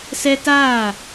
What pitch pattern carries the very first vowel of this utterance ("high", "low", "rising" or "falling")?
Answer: high